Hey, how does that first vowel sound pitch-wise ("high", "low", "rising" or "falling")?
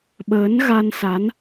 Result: rising